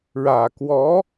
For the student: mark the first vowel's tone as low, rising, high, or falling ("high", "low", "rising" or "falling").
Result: low